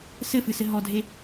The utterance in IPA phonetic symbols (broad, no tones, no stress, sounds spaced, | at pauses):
s ɘ f ɨ s ɘ ɦ ɔ dʱ e